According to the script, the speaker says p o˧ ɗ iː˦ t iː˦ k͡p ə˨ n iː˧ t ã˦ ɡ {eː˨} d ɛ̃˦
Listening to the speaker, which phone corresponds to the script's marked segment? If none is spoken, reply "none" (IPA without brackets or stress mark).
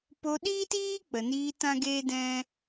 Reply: eː˦